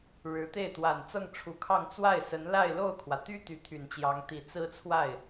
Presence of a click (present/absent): absent